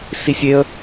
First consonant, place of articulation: alveolar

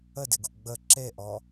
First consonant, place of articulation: alveolar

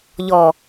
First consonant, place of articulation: palatal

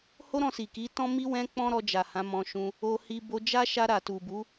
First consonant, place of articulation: glottal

